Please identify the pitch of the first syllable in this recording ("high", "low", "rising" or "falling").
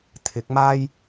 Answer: rising